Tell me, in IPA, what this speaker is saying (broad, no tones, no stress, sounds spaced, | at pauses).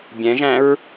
bʲ ɛ̃ ʒ æ̃ ɹ